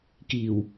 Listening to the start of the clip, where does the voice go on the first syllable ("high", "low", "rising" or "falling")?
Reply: low